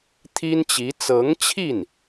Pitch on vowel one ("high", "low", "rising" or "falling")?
high